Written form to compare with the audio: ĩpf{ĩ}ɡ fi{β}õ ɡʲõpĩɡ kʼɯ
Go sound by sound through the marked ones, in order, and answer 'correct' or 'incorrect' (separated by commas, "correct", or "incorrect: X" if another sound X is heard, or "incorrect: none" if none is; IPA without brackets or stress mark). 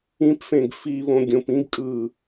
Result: incorrect: ẽ, correct